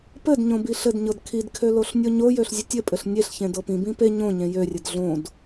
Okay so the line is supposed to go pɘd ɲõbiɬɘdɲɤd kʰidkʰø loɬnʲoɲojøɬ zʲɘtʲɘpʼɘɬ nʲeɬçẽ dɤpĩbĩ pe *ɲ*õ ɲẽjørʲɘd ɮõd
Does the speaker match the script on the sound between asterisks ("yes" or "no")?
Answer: yes